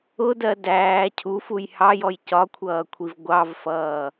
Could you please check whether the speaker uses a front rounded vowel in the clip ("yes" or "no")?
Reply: no